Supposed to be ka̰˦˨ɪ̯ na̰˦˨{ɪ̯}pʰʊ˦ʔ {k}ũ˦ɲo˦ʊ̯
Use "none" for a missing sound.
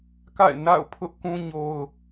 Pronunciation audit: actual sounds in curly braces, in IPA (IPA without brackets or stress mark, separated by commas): ʊ̯, k